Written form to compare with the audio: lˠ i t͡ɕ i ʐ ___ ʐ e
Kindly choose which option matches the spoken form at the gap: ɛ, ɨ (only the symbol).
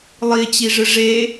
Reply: ɨ